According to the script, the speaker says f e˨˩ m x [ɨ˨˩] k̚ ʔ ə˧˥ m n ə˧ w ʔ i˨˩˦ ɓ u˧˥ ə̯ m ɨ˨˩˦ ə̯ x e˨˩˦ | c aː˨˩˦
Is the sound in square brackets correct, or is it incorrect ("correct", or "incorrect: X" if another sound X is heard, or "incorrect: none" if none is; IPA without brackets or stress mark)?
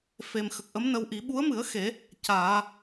incorrect: ə˨˩